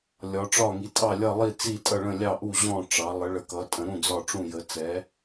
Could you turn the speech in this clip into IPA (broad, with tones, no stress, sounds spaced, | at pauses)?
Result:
lʲ ɒ˩˧ ʈ͡ʂ ɒ˧˩ ŋ i˩˧ tʼ ɑ˧˩ lʲ ʌ˧˩ lˠ i˧˩ t͡s i˧˩ tʼ ʌ˧˩ ɭ ə̃˧˩ lʲ ɑ˧˩ ʔ u˧˩ ʑ ɔ̃˧˩ ʈ͡ʂ ɑ˩˧ lˠ ə˩˧ ɭ ə˩˧ k ʌ˩˧ tʼ ə̃˩˧ ɾ ũ˧˩ d͡z ɒ˧˩ ʈ͡ʂ ũ˧˩ j ə˩˧ t͡s ɛ˩˧